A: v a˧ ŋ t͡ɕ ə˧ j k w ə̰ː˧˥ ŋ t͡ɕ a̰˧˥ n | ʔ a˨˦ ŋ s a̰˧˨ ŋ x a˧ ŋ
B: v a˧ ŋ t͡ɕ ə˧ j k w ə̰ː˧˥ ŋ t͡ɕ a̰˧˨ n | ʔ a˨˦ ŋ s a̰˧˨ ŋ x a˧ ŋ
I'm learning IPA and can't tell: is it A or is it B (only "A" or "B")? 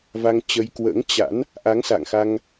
A